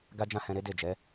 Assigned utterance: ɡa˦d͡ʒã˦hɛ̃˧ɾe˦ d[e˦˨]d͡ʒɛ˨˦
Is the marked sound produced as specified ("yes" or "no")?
yes